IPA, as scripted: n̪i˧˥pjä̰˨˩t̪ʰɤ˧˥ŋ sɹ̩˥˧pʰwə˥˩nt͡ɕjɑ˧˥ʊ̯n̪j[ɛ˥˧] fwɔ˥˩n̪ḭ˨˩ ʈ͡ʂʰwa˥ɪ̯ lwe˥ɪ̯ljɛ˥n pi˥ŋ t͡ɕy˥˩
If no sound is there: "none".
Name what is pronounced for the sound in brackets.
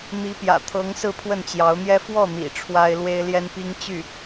ɛ˥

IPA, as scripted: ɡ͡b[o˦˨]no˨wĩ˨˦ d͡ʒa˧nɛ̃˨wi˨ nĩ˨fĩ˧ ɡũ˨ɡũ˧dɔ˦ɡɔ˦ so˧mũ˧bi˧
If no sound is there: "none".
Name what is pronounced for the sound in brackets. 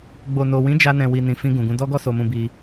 o˨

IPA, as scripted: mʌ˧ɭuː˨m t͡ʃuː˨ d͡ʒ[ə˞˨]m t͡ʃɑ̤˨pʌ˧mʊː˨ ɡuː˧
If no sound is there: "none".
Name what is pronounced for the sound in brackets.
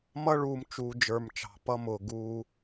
ə˞˨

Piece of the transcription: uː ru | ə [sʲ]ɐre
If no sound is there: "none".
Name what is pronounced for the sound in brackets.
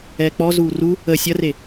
sʲ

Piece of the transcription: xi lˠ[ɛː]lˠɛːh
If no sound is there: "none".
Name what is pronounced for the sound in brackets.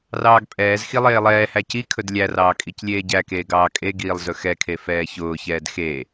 eː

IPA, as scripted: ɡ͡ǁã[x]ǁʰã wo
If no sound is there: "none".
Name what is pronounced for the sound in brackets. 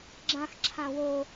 x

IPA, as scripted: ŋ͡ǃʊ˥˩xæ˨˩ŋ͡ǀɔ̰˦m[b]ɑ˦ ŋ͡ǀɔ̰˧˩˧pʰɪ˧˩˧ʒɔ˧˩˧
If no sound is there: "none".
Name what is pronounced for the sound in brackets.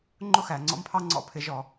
pʰ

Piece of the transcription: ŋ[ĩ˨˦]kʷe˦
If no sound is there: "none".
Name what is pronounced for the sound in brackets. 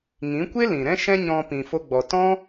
ĩ˨˦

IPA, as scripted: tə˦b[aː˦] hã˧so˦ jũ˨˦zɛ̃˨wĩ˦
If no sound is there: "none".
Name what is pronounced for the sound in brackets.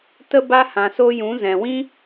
a˦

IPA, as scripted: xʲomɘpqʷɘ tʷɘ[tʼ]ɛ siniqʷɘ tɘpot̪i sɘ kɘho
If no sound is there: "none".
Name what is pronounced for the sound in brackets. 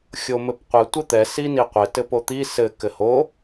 t̪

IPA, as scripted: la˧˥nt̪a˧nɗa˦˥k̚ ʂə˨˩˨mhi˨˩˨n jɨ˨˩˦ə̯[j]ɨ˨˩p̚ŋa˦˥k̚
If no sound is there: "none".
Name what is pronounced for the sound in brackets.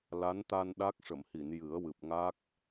w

